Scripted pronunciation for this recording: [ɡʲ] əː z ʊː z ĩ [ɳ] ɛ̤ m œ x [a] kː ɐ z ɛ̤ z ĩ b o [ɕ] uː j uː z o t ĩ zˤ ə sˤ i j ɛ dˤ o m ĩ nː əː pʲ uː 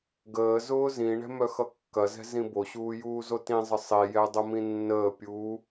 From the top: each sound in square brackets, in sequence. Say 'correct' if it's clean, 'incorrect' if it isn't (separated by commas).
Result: incorrect, correct, incorrect, correct